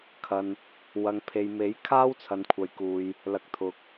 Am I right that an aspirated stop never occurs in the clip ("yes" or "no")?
no